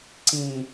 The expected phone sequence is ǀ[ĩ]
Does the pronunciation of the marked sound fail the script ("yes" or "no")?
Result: no